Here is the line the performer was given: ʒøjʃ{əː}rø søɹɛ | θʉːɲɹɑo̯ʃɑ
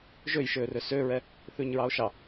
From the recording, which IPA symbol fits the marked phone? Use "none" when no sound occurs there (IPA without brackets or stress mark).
øː